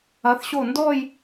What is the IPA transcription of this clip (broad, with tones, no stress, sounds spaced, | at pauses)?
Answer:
ɐ˩˧ θ ɕ o˧˩ n d ɔ˥˧ j